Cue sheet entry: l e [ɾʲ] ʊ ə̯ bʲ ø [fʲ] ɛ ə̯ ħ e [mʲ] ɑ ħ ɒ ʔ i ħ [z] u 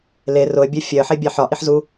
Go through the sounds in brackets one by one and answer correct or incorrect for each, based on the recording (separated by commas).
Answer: incorrect, correct, incorrect, correct